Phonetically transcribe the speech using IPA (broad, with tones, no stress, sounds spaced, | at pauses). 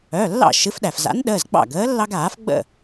œ˩˧˩ lː ɑ̰˥˩ ʃ ɨ˨˥ f ɗ æ˩ f z a̰˨˥ n ɗ əː˩˧˩ z ɡ͡b ɑ̰˥˩ ɡ əː˨˥ lː ɑ˦ ɡ aː˨˩˦ f ɡ͡b ə̰˥˩